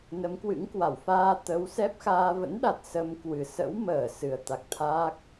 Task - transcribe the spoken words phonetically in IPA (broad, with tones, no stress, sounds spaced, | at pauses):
n ə˨˦ m k w ɨ̰˧˥ ŋ k w a˧˩ w f aː˧ t̪ ə˨˦ w s ɛ˦˥ p̚ x aː˧ v ə̰˧˥ n ɗ a˨˩ t̚ s ə˧ m k w ɨ˨˩ s ə̰˧˥ w m əː˧˩ s ɨ˨˩ ə̯ t̪ a˨˩ k̚ t̪ʰ a˦˥ k̚